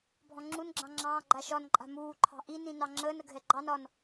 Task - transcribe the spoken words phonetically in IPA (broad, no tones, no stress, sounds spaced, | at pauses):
bʱ ɔ̃ ŋ͡ǁ u n ɡ͡ǁ ɑ̃ ŋ͡ǁ ɑ̃ː ɡ͡ǃ a ʃ ɒ n ǃʼ a̤ m uː ǃʰ ɑ̤ ʔ i n ĩ n ɑ ŋ͡ǁ əː n ə ɡʱ ɛ ɡ͡ǃ ɑ n ɒ n